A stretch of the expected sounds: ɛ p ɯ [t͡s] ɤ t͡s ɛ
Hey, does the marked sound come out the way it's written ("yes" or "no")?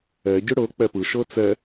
no